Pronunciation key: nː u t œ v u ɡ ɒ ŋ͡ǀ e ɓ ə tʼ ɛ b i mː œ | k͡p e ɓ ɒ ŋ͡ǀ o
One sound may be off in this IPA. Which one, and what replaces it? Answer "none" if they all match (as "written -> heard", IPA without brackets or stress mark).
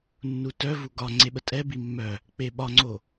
none